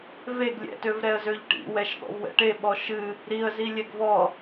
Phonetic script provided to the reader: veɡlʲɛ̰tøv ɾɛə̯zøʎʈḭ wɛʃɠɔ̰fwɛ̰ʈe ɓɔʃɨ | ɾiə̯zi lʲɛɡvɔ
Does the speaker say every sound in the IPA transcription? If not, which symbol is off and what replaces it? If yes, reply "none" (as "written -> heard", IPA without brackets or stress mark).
f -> v